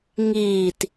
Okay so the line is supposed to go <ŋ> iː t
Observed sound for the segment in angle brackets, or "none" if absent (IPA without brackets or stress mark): ŋ